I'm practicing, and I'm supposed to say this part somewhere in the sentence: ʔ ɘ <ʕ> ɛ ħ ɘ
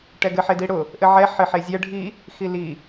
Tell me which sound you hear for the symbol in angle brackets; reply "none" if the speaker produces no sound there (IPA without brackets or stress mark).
ʕ